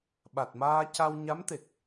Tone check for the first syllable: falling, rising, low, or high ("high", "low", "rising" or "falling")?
low